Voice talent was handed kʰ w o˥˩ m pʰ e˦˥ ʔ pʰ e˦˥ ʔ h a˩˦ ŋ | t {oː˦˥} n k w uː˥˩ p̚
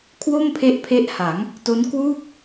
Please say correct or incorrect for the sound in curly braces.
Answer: incorrect